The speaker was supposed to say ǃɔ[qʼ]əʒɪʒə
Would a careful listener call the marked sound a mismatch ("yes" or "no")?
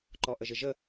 yes